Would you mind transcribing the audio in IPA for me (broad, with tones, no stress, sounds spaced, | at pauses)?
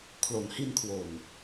kʰ l o˩˦ n h i˧ n kʰ w o˨˩ n